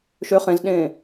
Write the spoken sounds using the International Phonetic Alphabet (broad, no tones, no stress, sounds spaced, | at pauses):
ʃ ø χ ẽ z ɗ ẽː